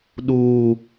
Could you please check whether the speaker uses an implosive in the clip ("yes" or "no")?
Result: yes